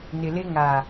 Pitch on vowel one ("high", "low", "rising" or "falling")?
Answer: low